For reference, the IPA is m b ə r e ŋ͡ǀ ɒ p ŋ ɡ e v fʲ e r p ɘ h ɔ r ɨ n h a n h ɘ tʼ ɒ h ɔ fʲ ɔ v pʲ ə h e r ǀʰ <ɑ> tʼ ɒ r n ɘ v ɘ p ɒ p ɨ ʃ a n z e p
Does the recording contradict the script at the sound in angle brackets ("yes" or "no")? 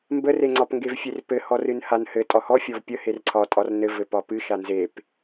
yes